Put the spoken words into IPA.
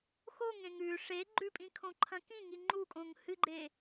x o ŋ ẽ ŋ ʉ ʂ e ɡ͡ǃ ʉ pʼ ĩ kʰ õ ǃʰ ɐ̃ k ĩ ŋ i ŋ͡ǃ u kʼ õ ŋ h ɨ ɡ͡ǃ e

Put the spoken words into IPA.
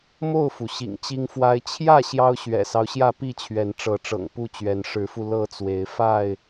m o˥˨ ʊ̯ f u˩ ɕ ḭ˨˩ ŋ t͡ɕ i˦ ŋ f w a˦ ɪ̯ t͡ɕʰ j ä˥˨ ɕ j ɑ˦ ʊ̯ ɕ ɥ ɛ̰˨˩ s ɑ˦ ʊ̯ ɕ j ä˥˨ p i˥˨ t͡ɕʰ ɥ ɛ˨˦ n ʈ͡ʂ ɤ˨˦ ʈ͡ʂ ɤ̰˨˩ ŋ p u˥˨ t͡ɕ ɥ ɛ˨˦ n ʂ ɻ̩˨˦ f u˧ l ɤ˥˨ t͡s w e˨˦ ɪ̯ f a˥˨ ɪ̯

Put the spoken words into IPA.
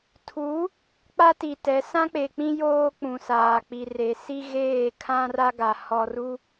tʰ u˨˦ | k͡p a˦ t i˨ t ɛ˨˦ s ã˦ k͡p e˨ k͡p ĩ˦ j oː˦ k͡p ũ˨ s aː˨ k͡p i˨ r e˨ s i˦ ɣ eː˦˨ kʰ ã˦ r a˦ ɡ a˨ h ɔ˦ r u˦

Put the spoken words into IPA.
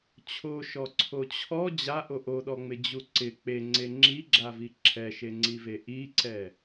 t͡ɕʰ o ʃ ɔ ǀʰ o t͡ɕʰ ɔ d͡ʑ a ʔ o ʔ o ɗ ɔ ŋ͡m ɪ d͡ʑ u ǀ ɪ k͡p e ŋ͡ǀ e ŋ͡ǁ i ɡ͡ǁ a v i ǁʰ ɛ ʃ e ŋ͡ǀ i v e ʔ i ǀ ɛ

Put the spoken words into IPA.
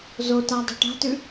z o t a dˤ ṳ ʈ a̤ t ʉ

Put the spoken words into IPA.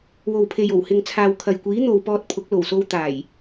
w o˨ w pʰ e˨ j o˨˩ w h ɪ˨ ŋ t͡sʰ aː˨ w kʰ ɐ˨ j kʷ iː˨˥ n̪ o˨ w p ɔː˧ t̚ pʰ ʊ˨˥ k̚ l o˨˩ w s o˧ w t̪ aː˨˩ j

